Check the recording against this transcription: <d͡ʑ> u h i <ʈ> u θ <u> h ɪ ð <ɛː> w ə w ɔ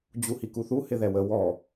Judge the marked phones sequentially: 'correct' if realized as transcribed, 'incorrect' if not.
correct, incorrect: k, correct, incorrect: ɛ

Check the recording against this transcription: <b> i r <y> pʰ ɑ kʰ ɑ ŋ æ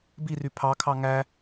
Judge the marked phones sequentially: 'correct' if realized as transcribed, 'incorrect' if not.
correct, correct

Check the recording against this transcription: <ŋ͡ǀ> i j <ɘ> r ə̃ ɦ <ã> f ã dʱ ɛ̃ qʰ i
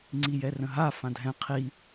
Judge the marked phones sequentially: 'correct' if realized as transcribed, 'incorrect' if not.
correct, incorrect: ɛ, incorrect: a

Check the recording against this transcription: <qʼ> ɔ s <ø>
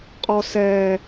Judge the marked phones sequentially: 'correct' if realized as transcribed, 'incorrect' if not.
correct, incorrect: ɛ

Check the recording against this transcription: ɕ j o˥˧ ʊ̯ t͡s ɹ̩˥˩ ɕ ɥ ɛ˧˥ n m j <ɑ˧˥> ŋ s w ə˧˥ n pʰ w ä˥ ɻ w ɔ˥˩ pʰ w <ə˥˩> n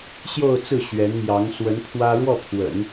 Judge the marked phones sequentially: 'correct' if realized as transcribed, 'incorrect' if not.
correct, incorrect: ə̰˨˩˦

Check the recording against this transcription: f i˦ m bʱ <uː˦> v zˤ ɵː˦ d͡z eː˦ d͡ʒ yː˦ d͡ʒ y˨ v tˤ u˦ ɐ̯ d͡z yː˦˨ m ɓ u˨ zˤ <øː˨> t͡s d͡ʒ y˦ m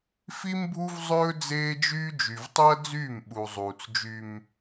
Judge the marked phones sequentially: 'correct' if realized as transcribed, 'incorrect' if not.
incorrect: u˦, incorrect: uː˨

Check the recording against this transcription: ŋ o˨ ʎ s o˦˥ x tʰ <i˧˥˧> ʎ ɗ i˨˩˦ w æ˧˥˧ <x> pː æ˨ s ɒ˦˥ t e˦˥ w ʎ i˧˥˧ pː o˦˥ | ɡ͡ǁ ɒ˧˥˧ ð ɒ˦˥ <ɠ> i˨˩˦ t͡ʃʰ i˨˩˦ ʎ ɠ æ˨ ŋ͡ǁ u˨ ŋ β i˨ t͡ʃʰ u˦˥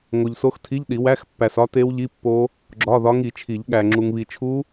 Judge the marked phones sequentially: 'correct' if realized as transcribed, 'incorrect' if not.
correct, correct, incorrect: ŋ

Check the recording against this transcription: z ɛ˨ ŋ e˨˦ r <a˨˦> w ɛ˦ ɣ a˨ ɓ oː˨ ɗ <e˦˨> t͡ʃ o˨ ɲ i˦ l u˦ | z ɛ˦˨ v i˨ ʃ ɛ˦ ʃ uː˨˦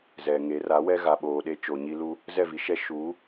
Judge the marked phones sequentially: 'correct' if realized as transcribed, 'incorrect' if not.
correct, incorrect: e˦

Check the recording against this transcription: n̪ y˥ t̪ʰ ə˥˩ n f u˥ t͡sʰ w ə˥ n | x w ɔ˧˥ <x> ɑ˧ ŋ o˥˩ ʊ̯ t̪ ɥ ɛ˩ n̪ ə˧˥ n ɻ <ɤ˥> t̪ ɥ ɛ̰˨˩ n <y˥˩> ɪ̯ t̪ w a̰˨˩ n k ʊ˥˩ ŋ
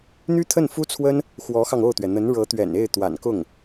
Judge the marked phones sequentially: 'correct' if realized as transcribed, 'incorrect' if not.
correct, incorrect: ɤ˧˥, incorrect: e˥˩

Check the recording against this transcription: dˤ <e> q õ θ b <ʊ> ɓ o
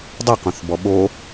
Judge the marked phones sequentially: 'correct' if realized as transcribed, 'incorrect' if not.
correct, incorrect: ɔ

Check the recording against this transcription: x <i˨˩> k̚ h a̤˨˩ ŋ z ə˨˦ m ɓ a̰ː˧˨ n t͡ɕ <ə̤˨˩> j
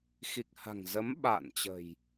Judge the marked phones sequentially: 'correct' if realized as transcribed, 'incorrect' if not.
correct, correct

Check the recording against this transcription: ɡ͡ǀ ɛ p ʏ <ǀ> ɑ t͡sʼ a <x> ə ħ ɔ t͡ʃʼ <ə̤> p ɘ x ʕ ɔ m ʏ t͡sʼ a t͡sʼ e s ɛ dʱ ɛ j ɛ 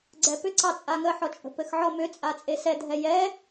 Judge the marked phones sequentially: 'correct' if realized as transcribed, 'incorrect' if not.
correct, incorrect: ŋ, correct

